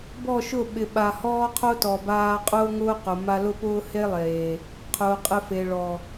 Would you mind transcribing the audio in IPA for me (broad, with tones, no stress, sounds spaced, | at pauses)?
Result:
b ɔ˦˨ ʃ ʊ˦˨ ɓ ɪ˨ ɓ a˨ h ɔː˦ qʰ o˦ t ɔ˨ b aː˧ qʼ ʊː˦ ŋ ʊː˦ q ʊ˨ m a˧ l ʊ˦ p ʊː˦ h e˦ lˠ eː˨ | qʰ ʊː˨ qʼ ɪ˧ f e˨ ɭ ɔ˨